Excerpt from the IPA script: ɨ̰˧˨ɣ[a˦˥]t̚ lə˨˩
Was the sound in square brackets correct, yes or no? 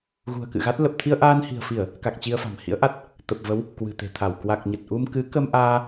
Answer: yes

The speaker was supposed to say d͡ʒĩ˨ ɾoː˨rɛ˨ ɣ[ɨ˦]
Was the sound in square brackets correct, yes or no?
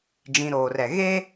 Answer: no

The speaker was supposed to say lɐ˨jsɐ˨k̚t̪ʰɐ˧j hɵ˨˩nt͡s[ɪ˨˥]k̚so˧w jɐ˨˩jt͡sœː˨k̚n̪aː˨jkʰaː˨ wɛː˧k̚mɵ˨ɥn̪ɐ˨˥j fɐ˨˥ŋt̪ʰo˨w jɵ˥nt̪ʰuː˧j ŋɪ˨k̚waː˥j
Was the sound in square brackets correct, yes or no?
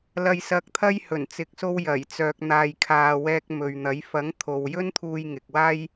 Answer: no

